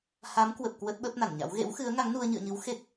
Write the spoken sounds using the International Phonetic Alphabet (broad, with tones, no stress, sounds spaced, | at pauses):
h a˨˦ m k w ə˨˩ p̚ k w ə˦˥ t̚ ɓ ə˦˥ p̚ n a˧˩ n ɲ a̰˧˥ w ɣ ḛ˧˥ w x ɨ˨˦ ə̯ ŋ a˨˦ ŋ n u˧ ə̯ ɲ ɨ̰˧˨ ə̯ ɲ ɨ˨˦ w x e˦˥ k̚